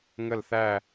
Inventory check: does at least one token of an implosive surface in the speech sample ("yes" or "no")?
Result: no